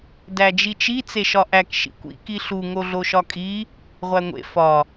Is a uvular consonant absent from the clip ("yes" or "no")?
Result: no